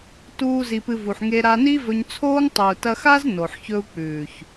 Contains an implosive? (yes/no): no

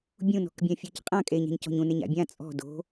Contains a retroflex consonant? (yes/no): no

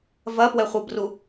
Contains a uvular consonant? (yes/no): yes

